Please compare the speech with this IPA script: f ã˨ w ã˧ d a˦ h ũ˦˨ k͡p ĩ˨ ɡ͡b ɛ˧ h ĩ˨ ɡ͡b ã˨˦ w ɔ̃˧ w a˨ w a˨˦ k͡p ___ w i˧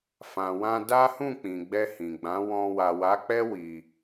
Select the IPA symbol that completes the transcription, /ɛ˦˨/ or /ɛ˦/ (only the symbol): ɛ˦